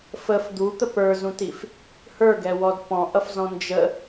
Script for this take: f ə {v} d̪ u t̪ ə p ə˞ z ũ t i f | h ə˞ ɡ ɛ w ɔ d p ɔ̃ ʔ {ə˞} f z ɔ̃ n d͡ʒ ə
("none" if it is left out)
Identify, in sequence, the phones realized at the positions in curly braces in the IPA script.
f, ʌ

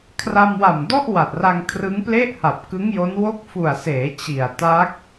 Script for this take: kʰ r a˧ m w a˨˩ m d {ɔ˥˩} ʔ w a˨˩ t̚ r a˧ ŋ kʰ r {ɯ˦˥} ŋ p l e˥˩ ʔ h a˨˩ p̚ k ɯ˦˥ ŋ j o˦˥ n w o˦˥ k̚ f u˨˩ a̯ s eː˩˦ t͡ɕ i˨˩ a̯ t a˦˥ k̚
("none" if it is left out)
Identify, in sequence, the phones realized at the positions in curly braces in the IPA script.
ɔ˥˩, ɯ˦˥

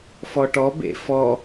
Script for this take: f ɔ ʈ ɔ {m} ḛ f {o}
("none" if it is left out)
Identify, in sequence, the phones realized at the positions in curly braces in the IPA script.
b, ɔ

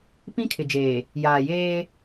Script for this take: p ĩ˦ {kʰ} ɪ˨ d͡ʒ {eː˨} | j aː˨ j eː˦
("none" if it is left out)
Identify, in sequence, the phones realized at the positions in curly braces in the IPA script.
kʰ, eː˨

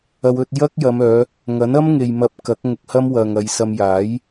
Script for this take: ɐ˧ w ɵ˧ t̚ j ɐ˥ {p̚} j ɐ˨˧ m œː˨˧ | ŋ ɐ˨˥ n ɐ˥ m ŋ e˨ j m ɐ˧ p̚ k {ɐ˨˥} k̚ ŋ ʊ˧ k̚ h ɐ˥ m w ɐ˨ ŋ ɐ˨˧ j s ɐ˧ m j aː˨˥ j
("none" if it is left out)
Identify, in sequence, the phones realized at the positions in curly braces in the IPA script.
k̚, ɐ˨˥

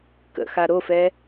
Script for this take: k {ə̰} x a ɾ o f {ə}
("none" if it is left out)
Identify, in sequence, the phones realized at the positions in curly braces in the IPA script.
ə̰, ɛ

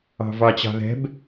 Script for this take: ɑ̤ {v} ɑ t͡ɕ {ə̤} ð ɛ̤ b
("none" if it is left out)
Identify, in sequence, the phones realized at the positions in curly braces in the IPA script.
v, ɑ̤

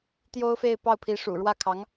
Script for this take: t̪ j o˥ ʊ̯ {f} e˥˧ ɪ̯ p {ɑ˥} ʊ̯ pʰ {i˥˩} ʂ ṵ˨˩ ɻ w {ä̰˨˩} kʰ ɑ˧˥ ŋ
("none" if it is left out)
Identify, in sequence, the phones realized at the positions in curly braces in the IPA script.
f, ɑ˥˩, i˧˥, ä˥˩

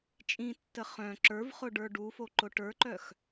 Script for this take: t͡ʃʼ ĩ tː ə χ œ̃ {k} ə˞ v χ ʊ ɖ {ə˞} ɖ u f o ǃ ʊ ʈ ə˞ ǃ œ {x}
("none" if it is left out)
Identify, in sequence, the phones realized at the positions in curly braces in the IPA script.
ǁ, ə˞, x

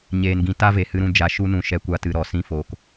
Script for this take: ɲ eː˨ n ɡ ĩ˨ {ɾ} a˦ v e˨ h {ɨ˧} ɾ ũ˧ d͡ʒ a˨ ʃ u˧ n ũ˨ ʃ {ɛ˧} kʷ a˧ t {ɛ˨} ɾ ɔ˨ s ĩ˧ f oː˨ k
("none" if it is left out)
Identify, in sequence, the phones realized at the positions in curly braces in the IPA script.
t, ɨ˧, ɛ˧, ɨ˨

